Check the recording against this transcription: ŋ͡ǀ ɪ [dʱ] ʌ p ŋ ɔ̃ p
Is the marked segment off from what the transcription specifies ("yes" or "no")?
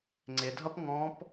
no